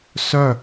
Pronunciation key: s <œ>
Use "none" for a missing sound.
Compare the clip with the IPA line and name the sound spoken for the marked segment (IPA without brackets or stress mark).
œ